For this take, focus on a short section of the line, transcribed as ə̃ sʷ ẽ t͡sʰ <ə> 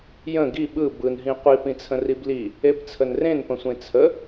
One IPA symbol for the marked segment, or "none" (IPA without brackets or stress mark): ə